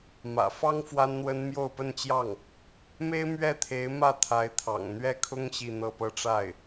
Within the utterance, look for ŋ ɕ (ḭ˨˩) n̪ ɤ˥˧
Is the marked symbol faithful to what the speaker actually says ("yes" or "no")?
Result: no